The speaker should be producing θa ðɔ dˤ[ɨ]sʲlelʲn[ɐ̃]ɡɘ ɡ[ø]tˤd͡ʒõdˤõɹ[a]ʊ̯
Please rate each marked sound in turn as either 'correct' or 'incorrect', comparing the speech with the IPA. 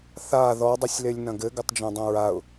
correct, correct, incorrect, correct

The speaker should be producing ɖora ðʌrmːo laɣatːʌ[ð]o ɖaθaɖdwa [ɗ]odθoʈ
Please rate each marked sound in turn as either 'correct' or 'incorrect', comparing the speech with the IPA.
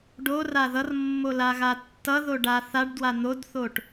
correct, incorrect

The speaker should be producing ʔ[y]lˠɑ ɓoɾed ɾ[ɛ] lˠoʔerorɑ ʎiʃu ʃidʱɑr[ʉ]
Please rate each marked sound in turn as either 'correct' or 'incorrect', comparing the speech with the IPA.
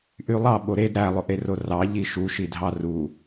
correct, incorrect, incorrect

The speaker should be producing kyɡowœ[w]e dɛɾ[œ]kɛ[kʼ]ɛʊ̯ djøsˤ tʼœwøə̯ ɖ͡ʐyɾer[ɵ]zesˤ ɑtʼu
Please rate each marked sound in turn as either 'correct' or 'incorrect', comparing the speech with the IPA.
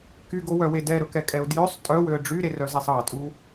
correct, incorrect, correct, incorrect

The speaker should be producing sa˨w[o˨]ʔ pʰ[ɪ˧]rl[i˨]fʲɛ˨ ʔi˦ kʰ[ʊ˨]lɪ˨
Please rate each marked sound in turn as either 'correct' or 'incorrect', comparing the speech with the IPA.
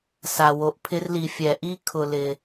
correct, correct, correct, correct

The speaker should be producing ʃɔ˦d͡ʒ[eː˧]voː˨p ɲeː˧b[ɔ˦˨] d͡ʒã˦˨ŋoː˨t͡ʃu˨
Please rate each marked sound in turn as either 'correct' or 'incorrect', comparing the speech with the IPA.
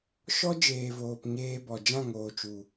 incorrect, incorrect

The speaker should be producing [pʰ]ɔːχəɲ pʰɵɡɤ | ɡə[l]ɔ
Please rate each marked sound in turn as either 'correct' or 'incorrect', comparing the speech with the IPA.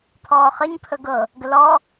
correct, correct

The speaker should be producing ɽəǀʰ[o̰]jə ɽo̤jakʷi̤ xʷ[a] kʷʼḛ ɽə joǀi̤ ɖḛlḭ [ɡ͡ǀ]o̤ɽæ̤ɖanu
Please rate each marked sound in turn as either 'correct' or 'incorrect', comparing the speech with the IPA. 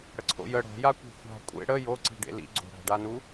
correct, incorrect, correct

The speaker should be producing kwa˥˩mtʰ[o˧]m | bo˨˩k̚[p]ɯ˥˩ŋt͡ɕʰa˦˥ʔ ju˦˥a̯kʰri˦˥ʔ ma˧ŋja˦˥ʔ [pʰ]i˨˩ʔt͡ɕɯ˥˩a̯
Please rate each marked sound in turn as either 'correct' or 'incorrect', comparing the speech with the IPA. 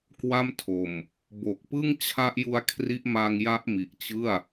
incorrect, correct, incorrect

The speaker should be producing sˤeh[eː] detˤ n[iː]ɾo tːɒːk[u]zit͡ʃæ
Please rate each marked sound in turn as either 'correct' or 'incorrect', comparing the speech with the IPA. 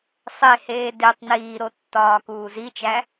correct, correct, incorrect

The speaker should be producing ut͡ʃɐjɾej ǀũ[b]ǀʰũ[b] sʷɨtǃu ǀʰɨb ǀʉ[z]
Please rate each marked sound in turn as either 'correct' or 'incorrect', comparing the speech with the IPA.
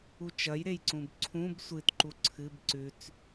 correct, correct, incorrect

